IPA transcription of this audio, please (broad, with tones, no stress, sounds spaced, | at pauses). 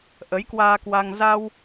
ʔ ə˨˦ j k w aː˧ k w a˧ ŋ z a˧ w